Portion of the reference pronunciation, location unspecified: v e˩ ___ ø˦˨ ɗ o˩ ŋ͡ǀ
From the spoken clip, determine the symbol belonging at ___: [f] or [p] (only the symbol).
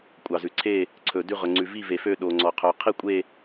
f